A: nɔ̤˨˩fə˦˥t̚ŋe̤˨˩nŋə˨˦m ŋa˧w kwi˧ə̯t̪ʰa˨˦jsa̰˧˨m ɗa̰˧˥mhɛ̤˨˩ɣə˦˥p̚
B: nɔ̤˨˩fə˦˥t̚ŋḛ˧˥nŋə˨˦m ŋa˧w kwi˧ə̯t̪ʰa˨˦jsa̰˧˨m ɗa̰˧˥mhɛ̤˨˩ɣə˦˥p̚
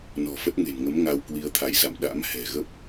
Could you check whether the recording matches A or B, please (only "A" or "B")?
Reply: A